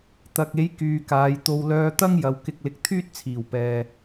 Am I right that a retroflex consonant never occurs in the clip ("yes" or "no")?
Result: yes